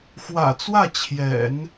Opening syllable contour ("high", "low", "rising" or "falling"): low